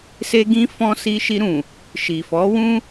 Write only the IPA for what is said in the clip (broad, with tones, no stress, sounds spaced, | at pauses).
s e˧ ɡ ĩ˧ f ɔ̃˧ s i˧ ʃ i˧ ɾ ũ˨ | ʃ i˨ f ɔ˨˦ w ũ˦